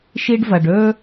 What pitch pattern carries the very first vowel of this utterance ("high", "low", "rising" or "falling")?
high